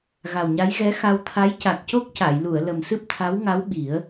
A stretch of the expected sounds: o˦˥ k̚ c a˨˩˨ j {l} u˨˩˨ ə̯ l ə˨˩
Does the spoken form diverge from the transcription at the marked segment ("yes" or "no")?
no